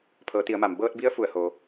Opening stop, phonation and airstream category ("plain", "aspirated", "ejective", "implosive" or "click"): aspirated